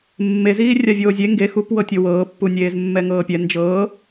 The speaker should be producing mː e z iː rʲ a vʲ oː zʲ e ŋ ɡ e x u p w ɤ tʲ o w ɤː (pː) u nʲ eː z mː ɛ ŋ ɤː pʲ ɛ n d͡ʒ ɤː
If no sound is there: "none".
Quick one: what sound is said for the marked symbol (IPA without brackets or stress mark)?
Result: pː